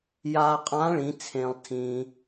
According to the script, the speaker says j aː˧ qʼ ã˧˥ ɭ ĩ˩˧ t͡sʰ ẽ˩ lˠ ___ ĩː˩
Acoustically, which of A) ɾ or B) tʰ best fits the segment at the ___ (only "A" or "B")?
B